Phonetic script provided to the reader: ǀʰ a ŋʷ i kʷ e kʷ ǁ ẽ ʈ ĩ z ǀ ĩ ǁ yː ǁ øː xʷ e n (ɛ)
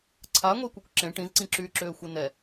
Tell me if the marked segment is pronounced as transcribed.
yes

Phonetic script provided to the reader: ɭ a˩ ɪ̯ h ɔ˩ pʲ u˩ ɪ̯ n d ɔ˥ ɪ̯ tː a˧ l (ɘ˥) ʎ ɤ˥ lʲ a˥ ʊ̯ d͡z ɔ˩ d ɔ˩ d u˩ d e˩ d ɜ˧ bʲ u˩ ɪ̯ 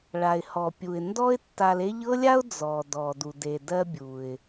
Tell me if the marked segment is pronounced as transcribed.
no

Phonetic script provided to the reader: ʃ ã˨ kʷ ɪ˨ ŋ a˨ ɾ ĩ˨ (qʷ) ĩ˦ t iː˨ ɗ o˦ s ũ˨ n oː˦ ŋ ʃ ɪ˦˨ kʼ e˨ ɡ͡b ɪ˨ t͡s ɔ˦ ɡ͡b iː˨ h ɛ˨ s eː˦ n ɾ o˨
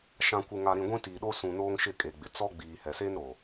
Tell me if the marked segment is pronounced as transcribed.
no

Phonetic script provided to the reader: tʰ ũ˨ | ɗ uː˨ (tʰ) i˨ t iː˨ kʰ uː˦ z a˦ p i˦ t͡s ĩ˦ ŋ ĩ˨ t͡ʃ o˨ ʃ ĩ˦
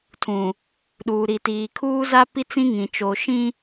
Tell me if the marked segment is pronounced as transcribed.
no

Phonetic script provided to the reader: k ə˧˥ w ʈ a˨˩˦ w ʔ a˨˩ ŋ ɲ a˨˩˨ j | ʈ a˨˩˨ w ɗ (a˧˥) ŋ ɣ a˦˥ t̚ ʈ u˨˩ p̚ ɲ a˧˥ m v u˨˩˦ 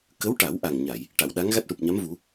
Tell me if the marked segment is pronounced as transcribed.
yes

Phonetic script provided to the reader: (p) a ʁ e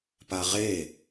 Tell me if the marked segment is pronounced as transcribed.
yes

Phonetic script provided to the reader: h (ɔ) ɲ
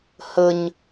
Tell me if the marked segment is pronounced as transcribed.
no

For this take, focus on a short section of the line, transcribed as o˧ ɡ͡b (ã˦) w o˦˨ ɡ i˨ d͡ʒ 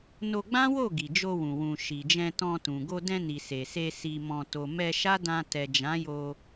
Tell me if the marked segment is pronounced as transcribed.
yes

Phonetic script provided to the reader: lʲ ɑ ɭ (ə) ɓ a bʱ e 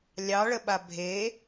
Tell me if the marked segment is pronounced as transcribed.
yes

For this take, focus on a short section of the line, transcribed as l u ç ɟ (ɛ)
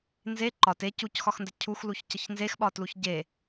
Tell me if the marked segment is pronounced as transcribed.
no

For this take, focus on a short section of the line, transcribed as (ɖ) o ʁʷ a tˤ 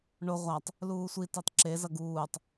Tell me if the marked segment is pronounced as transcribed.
no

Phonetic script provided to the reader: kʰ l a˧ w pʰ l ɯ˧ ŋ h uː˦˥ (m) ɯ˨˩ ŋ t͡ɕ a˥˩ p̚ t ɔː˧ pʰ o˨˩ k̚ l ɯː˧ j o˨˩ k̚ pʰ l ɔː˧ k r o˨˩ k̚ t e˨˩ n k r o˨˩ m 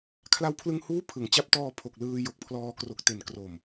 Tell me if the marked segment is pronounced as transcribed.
no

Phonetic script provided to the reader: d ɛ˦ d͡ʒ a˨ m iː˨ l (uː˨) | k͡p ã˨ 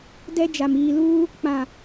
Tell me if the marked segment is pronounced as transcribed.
no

